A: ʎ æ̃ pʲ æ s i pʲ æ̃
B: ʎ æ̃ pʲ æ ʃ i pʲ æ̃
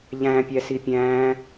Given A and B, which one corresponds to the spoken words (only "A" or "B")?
A